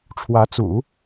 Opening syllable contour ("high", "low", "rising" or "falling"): rising